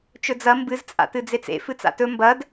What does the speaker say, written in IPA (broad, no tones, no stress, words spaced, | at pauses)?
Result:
t͡ʃɵd͡zɐ mbɨz t͡sʼa̰tɨd͡zet͡sḛ fɨt͡sa̰tɵ mbɐd